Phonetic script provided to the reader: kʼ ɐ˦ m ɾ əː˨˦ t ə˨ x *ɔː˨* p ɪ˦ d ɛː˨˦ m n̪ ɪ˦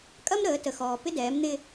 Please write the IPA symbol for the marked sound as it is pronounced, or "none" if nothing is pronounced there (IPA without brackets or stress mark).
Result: ɔː˨